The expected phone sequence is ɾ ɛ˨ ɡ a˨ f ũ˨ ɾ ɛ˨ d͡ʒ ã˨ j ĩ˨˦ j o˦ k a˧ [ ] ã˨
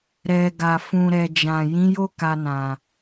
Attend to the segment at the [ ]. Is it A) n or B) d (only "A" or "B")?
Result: A